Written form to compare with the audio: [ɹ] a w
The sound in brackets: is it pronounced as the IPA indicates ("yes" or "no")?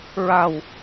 yes